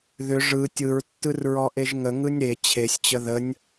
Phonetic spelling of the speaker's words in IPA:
ð ʏ ʐ ɯ tʲ ɯ ɹ tː ɯ r ɹ ɔ ʔ e ʒ ŋ ə ŋ ɯ nʲ ɾ e t͡ɕʰ e sʲ t͡ɕ ə ð ə nʲ

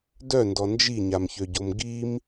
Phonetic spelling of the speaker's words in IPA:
d œ n d ɔ n d͡ʒ i ɲ a m ç ø ɟ o m ɡ i m

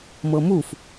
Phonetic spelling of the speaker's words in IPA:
m ɤ m u f

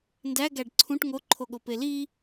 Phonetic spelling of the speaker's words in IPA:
n d æ ɡ æ ɖ ǀʰ ũ ʈ ŋ o ǃʰ o ɠ o p e l i

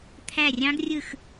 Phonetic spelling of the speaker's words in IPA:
t̪ʰ æ˦˨ rʲ ɑ̃˦˥ ɡ rʲ ɯ˦˨ x

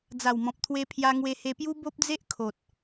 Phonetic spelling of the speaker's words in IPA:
d͡z a˨˩ w m ɔ̃˨ p̚ t̪ʰ w e˧ pʰ j a˧ ŋ w e˧ h e˧ p j u˦ b o˦ p̚ d͡z e˦ ʔ kʰ o˨ t̚

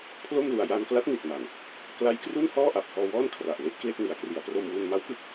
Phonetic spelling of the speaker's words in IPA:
pʰ l o˥˩ m l u˨˩ a̯ j a˧ n k l a˦˥ t̚ n i˨˩ t̚ m a˨˩ n | k l a˦˥ j k r u˥˩ n h ɔː˥˩ ʔ a˨˩ p̚ h ɔː˧ w ɔː˥˩ n kʰ r a˨˩ ʔ l e˦˥ ʔ k l e˥˩ k̚ n i˩˦ a̯ k r i˩˦ a̯ p r o˧ m w u˧ n m a˦˥ w k ɯ˥˩ k̚

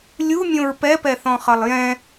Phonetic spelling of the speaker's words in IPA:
lʲ u mʲ õ ɹ p ɛ p ɛ θ ɔ̃ χ ʌ lˠ j ɛ̃

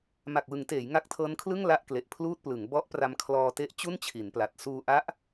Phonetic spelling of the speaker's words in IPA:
m a˨˩ k̚ w ɯ˩˦ ŋ t eː˩˦ j ŋ a˦˥ k̚ tʰ ɤː˦˥ n kʰ l ɯ˥˩ ŋ l a˥˩ ʔ k l e˨˩ ʔ pʰ l uː˥˩ t̚ p l ɯ˩˦ ŋ b ɔ˦˥ ʔ p r a˧ m kʰ l ɔː˧ t e˦˥ ʔ t͡ɕ u˥˩ n t͡ɕʰ i˩˦ n p l a˨˩ t̚ s uː˧ ʔ a˦˥ ʔ

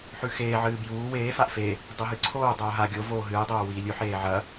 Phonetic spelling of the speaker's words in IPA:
ħ ʉ x eː ʕ ɨː b j uː w eː f a ʔ f e | dˤ ɵ ɦ ɨ ǀʰ oː dˤ oː ɦ a ɡʲ o v oː ɦ ɨː dˤ oː w iː lʲ ʉ ħ eː ʕ ɐ

